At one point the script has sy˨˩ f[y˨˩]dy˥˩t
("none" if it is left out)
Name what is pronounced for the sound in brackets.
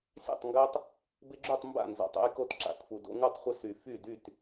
y˥˩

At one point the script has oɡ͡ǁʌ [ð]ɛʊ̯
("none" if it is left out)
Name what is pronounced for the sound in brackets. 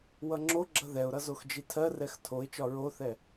ð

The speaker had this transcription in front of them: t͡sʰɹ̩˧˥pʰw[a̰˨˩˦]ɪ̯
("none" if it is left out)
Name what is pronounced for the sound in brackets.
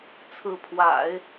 a̰˨˩˦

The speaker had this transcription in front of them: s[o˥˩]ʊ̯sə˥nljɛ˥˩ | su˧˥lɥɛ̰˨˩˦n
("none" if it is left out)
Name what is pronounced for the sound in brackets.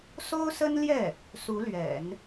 o˥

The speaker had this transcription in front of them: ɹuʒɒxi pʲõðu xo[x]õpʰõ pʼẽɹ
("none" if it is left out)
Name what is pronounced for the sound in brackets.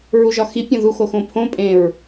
x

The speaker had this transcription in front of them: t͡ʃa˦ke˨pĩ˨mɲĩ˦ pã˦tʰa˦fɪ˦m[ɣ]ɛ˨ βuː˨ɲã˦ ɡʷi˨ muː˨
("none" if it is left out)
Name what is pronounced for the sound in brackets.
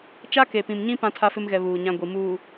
ɣ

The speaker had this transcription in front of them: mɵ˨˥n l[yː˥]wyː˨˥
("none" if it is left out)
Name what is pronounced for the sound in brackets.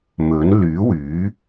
yː˨˥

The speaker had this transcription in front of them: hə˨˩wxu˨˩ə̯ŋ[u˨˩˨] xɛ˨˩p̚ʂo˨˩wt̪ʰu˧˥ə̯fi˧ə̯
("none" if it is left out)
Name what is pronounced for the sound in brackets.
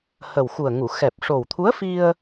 u˨˩˨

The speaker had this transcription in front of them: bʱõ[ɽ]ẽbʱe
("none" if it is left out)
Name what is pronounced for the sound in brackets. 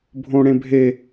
ɽ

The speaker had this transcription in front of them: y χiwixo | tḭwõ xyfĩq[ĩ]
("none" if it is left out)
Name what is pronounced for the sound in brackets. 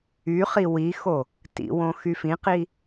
i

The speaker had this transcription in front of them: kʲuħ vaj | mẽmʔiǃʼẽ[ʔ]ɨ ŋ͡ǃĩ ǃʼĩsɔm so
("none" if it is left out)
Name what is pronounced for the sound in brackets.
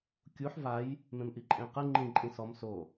q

